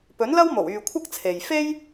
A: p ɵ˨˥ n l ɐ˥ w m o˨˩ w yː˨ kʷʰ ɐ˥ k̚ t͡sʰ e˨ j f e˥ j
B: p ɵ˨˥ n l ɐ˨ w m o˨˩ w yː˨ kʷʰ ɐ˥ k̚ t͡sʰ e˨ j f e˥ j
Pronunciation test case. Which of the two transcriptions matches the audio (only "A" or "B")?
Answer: A